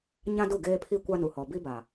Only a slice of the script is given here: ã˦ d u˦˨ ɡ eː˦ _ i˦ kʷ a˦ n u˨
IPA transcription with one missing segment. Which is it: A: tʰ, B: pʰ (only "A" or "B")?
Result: B